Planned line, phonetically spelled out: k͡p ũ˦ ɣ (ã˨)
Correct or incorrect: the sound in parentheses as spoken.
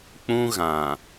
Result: correct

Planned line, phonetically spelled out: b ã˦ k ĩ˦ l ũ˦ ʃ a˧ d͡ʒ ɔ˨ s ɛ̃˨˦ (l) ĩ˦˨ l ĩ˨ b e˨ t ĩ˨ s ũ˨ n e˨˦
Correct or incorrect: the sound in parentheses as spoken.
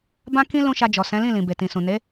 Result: correct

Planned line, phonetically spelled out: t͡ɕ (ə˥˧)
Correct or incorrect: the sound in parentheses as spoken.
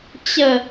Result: correct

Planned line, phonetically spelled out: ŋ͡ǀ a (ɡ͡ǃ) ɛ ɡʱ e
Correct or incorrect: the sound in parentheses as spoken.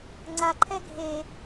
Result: incorrect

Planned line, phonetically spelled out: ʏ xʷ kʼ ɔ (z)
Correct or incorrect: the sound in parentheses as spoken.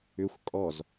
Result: correct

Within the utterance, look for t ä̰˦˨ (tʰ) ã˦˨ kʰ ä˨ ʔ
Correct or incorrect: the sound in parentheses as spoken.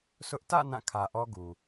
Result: incorrect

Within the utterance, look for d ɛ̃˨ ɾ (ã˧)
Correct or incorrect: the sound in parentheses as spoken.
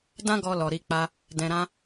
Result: correct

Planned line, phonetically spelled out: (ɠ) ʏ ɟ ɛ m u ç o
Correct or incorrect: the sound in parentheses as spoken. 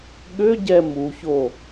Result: correct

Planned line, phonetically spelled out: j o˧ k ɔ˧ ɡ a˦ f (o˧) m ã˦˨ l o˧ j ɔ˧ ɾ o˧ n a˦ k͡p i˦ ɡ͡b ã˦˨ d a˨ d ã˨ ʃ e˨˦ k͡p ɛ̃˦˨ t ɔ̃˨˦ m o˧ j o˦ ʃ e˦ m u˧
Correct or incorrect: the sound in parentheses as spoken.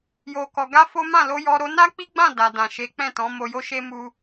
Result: incorrect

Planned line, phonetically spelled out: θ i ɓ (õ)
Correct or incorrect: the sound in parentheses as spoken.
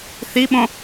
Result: correct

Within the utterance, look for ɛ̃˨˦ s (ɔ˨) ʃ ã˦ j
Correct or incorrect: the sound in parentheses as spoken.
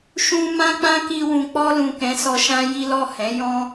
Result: incorrect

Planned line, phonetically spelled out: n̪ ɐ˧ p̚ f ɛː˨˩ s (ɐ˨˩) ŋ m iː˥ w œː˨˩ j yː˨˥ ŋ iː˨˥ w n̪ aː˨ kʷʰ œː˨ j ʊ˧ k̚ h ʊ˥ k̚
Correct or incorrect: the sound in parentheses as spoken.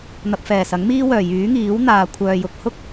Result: incorrect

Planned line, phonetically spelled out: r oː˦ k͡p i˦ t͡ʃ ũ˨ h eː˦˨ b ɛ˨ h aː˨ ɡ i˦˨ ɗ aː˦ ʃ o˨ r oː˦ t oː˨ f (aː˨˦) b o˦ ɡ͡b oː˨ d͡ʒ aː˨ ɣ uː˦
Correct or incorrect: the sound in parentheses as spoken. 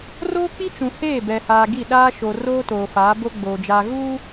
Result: correct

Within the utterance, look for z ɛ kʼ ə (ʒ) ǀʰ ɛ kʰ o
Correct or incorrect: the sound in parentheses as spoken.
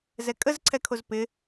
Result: incorrect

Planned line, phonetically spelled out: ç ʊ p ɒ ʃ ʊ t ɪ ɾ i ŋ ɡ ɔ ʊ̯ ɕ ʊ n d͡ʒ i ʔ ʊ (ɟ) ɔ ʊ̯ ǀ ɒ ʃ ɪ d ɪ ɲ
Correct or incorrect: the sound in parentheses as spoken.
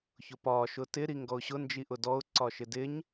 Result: incorrect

